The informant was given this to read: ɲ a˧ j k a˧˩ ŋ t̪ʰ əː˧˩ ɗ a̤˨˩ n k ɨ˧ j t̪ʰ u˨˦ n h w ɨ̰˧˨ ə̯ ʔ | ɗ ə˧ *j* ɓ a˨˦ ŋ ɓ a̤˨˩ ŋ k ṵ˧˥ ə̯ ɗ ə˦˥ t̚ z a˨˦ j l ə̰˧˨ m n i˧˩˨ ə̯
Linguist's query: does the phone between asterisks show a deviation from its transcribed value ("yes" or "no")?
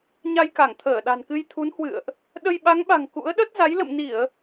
no